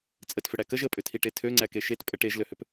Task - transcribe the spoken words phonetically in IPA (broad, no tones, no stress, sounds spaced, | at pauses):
t͡sʼ ə t f ʏ ɽ æ k ə ʒ ə pʼ ʏ tʰ i ʈ e tʰ ø ŋ͡ǀ æ k e ʃ e t pʼ ə ʈ e ʒ l ø h ʏ p